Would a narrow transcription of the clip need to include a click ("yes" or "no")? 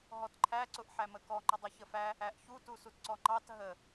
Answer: yes